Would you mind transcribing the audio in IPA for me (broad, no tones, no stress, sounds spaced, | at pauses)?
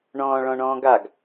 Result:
ɳ ɔ̃ː ɭ ɔ̃ ɳ ɔ̃ː ɡ a ɡ